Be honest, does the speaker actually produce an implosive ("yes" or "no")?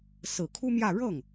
no